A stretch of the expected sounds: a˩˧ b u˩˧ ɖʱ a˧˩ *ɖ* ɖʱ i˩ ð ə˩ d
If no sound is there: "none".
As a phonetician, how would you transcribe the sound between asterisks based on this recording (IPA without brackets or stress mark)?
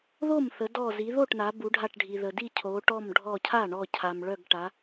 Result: ʈ